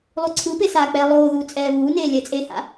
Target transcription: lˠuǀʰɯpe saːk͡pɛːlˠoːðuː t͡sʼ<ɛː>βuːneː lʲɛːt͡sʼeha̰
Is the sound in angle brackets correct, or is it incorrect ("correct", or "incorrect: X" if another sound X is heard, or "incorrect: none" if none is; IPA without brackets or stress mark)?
correct